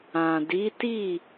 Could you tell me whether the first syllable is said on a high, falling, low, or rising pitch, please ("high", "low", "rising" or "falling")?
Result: low